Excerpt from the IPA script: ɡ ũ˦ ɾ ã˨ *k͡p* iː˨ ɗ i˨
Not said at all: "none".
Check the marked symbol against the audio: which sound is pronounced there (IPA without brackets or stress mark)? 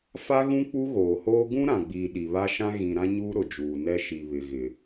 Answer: ɡ͡b